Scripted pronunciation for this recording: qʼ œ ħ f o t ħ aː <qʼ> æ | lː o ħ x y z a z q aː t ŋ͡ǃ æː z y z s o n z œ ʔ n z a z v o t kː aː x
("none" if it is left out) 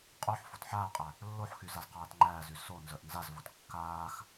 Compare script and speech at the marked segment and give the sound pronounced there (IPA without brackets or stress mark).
qʼ